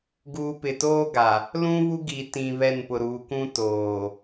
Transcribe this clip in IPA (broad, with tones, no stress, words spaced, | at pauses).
ɡuː˨ pɪ˨toː˦ɡa˨ | lũ˦ βu˦ɡi˨ tĩ˨βɛ˦˨npʊ˨ ɾuː˨kʷũ˦toː˨